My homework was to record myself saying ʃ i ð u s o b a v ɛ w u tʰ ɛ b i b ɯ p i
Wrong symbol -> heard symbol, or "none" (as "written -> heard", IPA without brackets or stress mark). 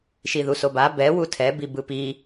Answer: v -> b